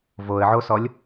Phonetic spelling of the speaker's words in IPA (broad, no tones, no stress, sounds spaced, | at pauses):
v o ə̯ ʕ o s ɔ lʲ